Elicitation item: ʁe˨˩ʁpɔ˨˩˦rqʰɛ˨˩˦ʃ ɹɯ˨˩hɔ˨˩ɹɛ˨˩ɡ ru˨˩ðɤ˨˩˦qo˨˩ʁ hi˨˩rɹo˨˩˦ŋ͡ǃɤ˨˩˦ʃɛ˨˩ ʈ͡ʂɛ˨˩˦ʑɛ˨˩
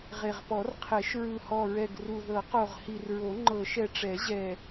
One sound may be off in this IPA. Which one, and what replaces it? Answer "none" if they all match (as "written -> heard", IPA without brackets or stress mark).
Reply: none